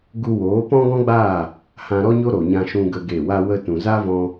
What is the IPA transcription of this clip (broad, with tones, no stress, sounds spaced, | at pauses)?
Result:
ɡ u˧ w oː˨˦ p ɔ̃˦ ɡ ɔ̃˦ ɡ͡b aː˦˨ | h ã˧ ɾ ɔ˦ ɲ o˦ ɾ o˨ ɲ ã˧ ʃ ũ˧ ɡ ə˦ ɡ e˦˨ w a˧ w ə˧ t ũ˨ z a˦ v ɔ̃˧